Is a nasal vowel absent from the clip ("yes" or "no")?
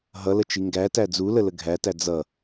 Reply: yes